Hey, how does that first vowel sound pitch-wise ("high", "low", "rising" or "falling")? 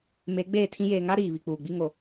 rising